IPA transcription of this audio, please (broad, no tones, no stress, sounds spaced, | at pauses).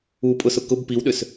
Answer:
u pʼ ʊ s ʊ k ʊ b p i w ɗ ʏ s